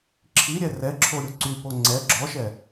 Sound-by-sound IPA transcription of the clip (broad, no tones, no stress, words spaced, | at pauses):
ǁʰiɾʲɛ rɛǁʰo ɾʲuǀypo ŋ͡ǀɛ ɡ͡ǁɔʃɛ